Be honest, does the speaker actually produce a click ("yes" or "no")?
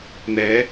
no